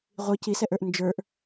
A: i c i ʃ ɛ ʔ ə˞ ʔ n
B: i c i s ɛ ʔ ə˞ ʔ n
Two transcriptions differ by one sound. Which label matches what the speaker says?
B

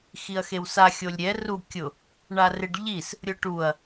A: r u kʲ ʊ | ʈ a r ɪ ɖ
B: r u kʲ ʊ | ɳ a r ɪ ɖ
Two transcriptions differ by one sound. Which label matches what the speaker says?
B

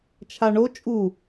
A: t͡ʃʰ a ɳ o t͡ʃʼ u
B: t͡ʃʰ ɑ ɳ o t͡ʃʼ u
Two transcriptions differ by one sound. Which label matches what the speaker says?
A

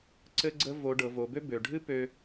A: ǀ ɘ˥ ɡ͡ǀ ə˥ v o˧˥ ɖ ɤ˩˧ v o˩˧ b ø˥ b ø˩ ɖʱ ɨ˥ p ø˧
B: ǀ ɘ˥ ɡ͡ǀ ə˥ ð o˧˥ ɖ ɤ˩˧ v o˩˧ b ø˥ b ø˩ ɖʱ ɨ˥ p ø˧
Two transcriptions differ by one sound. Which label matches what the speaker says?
A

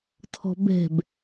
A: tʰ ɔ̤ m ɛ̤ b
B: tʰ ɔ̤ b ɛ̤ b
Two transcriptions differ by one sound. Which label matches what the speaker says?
B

